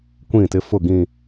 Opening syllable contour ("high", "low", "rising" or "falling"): falling